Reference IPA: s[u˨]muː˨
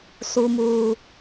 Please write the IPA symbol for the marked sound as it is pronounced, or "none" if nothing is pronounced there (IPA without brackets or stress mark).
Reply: u˨